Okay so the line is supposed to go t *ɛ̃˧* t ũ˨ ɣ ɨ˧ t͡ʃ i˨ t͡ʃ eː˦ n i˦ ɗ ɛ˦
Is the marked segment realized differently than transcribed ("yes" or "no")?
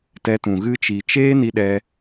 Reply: yes